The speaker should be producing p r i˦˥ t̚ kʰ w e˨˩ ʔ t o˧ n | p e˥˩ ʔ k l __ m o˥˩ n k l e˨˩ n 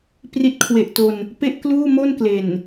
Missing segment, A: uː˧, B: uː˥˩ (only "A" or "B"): B